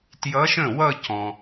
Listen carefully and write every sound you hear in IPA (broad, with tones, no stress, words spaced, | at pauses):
tjʌ˧˥ʃə̃˥˩wʌ˥˧ cɔ̃˩